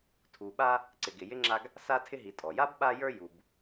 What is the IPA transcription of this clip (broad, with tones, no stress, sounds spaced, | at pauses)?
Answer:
tʰ u˨ ɓ a˦ | ǀ ɪ˨ ɡ ɪ˨ j ɪ˥ ŋ͡ǁ a˦ ɡ | s a˥ tʰ ɪ˥ ɦ i˨ tʼ ɔ˩ j a˥ b ɓ a˦ j ə˞˦ j u˨ b